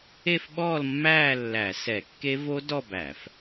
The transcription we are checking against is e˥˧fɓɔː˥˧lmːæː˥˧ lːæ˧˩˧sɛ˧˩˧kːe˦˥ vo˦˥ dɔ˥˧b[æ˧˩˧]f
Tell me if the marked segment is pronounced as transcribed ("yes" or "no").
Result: yes